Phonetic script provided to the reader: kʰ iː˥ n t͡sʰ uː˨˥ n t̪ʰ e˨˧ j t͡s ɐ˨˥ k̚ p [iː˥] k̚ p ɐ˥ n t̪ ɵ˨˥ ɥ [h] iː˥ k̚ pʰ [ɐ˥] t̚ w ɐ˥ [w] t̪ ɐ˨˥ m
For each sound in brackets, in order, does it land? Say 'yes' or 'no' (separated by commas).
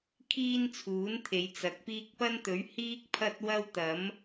yes, yes, yes, yes